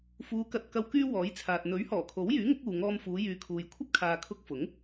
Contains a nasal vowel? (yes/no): no